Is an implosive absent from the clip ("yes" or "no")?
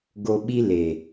no